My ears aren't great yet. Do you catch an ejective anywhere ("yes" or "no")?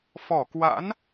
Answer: no